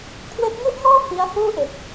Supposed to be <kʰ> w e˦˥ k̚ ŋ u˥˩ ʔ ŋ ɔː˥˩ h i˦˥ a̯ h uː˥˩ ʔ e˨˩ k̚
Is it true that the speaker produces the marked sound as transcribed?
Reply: yes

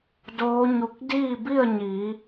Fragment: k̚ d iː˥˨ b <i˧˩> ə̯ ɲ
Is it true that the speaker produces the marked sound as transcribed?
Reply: no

